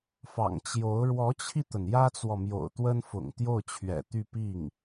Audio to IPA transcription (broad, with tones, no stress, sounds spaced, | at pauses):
f ɑ̰˨˩ ŋ t͡ɕ j o˧˥ ʊ̯ ɻ w ɔ˧˥ t͡ɕʰ i˧ t̪ ə˩ n j ä˥ t͡s w ɔ˨ m j o̰˨˩ ʊ̯ t̪ w ə˥ n f ʊ̰˨˩ ŋ t̪ j o˥˩ ʊ̯ t͡ɕʰ ɥ ɛ̰˨˩ t̪ y˥˧ p i˥˩ ŋ